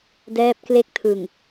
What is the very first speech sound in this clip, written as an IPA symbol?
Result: d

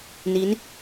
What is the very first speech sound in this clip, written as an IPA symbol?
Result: n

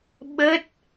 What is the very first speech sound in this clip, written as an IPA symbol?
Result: ɓ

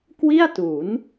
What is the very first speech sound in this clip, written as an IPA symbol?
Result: k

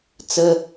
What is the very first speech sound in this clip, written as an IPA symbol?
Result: t͡s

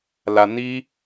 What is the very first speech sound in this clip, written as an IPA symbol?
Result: l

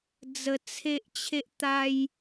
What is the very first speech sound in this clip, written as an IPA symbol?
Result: d͡z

